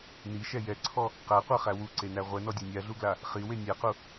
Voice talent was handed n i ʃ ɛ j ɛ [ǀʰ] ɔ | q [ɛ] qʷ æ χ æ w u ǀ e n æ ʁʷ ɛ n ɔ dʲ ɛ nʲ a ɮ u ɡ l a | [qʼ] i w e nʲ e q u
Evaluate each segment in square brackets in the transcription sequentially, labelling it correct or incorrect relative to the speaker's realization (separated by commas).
correct, incorrect, incorrect